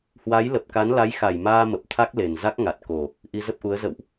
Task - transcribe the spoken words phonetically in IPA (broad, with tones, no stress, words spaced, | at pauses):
hwa˨˦j lə˨˩p̚ka˨˦nla˨˦j xa˧˩jmaː˧ mə˨˩p̚t̪ʰa˦˥k̚le˨˩n za˦˥k̚ŋa˨˩t̚ ko˨˩ | ʔi˧zə˦˥p̚ʔu˨˦ə̯ zə̰˧˨wʔ